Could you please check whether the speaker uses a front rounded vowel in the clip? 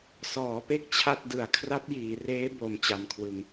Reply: no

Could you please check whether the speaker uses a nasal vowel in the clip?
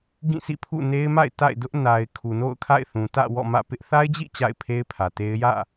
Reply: yes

